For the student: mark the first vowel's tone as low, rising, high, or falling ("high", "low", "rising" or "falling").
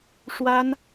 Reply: high